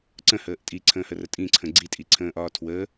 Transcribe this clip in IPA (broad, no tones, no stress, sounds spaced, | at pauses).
ǀ ə̃ h əː ʔ tʼ i ǀʰ ə̃ː h ə r ə tʼ ĩ ǀʰ ə̃ ɡ͡ǀ i tʼ i ǀʰ ə̃ː ʔ ɒː tʰ w ə